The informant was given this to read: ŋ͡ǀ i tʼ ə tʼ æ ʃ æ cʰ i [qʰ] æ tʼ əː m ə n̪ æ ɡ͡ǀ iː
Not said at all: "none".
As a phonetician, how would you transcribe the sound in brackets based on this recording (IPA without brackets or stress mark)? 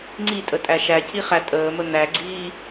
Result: χ